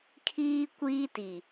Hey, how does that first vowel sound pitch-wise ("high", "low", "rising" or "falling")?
high